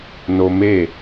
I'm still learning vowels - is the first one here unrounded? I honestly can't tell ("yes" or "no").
no